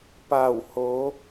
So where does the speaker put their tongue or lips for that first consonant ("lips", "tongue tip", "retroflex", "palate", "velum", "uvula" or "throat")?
lips